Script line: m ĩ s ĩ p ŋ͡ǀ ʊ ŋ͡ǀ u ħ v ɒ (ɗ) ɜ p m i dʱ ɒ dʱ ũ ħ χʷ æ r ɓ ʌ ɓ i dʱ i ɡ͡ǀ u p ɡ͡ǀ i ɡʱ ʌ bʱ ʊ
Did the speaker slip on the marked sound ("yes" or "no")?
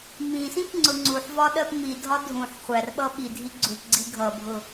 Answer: no